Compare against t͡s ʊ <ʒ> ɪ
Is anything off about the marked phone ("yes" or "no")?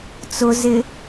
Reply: yes